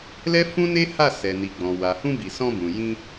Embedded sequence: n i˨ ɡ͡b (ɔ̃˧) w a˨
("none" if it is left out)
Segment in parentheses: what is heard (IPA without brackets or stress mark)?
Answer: ɔ̃˨